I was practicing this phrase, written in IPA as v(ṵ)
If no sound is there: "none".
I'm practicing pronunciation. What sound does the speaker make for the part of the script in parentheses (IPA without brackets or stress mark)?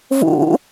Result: ṵ